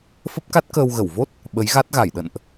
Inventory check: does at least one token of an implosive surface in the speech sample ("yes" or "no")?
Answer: yes